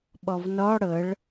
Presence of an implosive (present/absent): present